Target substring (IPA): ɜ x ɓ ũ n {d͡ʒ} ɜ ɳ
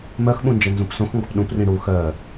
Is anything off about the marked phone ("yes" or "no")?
no